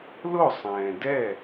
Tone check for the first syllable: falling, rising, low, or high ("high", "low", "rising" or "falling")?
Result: falling